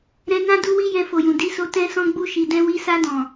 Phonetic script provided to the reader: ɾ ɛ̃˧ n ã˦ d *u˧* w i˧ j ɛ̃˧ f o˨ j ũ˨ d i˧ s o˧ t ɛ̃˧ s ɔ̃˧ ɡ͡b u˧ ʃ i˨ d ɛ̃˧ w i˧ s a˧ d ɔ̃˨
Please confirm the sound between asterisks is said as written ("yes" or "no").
yes